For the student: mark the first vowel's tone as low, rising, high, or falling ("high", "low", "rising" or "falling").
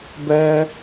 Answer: high